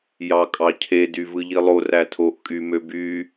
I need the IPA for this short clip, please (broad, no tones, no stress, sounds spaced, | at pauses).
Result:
j ɑ kʼ ɑ cʰ e d y v ɯ ʎ i lˠ o r æ tʰ o ʔ kʼ y m ø b y